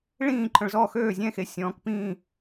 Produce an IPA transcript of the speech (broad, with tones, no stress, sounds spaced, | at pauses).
ɭ ĩː˥˨ ǃʰ œ̃˨ ɭ z ɔ˥˨ x øː˥˨ zʲ ɛ̃˥˨ x e˨ sʲ ɔ̃ː˨ k p ĩː˥˨